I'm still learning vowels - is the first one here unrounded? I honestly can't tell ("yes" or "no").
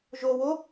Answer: no